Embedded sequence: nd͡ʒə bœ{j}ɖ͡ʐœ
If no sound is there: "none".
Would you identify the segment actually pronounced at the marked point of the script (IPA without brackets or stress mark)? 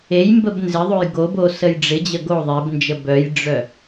j